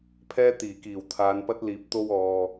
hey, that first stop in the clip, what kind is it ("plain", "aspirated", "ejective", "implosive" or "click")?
aspirated